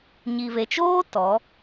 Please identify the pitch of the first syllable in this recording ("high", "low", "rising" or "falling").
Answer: low